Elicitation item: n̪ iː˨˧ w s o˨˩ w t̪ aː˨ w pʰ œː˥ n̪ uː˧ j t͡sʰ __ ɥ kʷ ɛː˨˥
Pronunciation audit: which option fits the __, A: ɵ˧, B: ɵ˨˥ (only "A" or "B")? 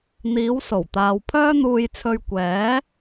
A